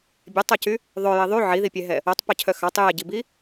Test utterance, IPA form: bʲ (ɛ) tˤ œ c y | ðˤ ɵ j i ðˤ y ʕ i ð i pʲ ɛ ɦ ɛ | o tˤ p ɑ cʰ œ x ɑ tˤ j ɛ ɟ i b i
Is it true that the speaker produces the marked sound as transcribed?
yes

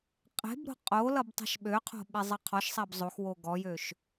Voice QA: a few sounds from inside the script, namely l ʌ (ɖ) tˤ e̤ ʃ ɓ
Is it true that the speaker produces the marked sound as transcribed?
no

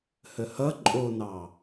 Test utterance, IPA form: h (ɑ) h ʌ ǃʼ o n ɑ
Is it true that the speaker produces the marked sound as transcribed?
no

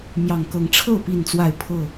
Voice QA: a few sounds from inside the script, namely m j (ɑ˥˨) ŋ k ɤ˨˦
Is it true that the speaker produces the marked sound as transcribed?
no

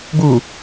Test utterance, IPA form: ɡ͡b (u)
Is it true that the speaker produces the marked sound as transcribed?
yes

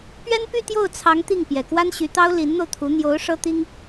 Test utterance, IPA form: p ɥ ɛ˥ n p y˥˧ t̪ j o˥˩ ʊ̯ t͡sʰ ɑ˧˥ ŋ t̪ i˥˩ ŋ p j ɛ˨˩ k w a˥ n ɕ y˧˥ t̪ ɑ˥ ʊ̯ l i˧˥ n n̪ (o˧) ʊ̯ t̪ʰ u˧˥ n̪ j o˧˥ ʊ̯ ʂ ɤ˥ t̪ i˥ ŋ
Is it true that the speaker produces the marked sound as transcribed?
yes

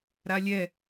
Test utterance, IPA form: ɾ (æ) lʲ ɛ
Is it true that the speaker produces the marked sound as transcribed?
no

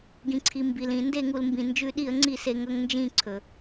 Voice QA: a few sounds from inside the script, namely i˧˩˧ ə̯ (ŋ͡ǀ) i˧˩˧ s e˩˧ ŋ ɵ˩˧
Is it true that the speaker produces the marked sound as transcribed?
yes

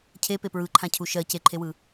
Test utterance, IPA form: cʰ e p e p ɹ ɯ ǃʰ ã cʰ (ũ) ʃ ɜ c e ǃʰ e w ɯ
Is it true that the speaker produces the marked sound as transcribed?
no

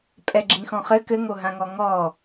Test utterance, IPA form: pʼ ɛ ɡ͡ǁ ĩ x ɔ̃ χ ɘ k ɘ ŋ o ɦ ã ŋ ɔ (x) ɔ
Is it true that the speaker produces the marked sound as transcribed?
no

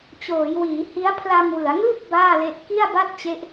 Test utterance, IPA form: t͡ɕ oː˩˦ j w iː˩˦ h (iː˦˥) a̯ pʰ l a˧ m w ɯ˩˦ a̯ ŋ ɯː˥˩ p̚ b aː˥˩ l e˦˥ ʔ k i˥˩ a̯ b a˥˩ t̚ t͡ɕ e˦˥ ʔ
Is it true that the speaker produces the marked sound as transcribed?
no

